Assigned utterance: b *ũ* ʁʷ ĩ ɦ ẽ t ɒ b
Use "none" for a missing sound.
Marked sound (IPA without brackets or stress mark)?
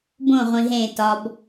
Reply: õ